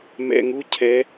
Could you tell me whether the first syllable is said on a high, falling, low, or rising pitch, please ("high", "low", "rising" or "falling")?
low